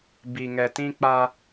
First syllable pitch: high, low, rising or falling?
low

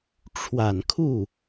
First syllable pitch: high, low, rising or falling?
low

